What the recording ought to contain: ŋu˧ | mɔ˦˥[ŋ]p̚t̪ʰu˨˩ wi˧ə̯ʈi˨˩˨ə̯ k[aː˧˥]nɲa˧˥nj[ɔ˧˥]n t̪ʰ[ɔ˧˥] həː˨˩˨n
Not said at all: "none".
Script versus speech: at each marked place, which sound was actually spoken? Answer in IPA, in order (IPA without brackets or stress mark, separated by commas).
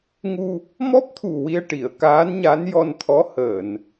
none, aː˧˥, ɔ˧, ɔ˧˥